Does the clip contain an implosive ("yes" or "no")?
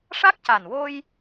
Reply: no